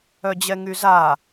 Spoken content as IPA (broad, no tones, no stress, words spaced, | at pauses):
œd͡ʑɛŋyza